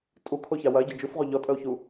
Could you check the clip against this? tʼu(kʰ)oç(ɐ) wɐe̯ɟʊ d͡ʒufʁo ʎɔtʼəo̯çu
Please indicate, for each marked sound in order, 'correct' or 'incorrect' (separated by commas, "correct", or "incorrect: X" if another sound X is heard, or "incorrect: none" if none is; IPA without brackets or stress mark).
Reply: correct, incorrect: a